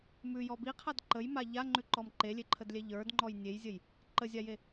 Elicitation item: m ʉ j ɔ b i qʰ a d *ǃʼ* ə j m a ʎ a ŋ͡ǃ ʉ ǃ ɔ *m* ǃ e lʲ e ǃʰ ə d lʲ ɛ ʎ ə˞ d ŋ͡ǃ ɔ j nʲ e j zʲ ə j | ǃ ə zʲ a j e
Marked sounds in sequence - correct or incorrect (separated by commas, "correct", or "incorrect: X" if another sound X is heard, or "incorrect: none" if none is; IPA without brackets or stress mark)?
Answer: incorrect: ǃ, correct